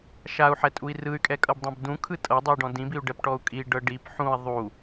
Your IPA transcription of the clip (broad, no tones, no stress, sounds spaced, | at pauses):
ʃ a u̯ ħ ɛ tʼ u i̯ r ɯ y̯ kʼ ɛ kʼ ɤ b dˤ ɛ̃ b d ũ kʰ ɯ tʼ ɤ dˤ ɯ i̯ ɖ ɔ̃ d ĩ b i u̯ ɖ ɛ p ʈ ɔ u̯ kʼ i ɖ ɤ ɖ i p ħ ũ i̯ ðˤ u